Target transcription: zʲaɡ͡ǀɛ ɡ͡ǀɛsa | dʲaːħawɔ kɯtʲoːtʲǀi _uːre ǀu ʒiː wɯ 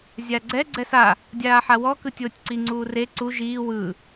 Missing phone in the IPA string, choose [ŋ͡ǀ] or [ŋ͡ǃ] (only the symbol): ŋ͡ǀ